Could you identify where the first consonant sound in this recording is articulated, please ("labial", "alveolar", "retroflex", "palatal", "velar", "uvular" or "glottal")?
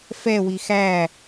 labial